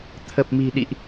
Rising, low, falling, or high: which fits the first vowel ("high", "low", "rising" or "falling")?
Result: low